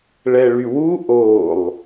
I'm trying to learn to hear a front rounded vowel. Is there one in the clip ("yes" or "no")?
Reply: yes